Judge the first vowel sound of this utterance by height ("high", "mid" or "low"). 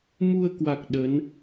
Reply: high